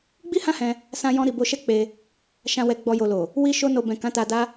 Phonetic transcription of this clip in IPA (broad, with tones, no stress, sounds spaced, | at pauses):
ɡ͡b i˦ h ã˦ h ɛ̃˧ | s ã˧ j ɔ̃˧ ɾ i˨ b o˧ ʃ ɛ˦ k͡p e˧ | ʃ ã˨ w ɛ˨ ɡ͡b ɔ˨ j o˨ l o˨ | w i˧ ʃ o˧ n o˨ b ɛ̃˨ k ã˨˦ t a˧ d a˦